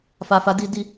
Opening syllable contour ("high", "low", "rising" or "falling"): low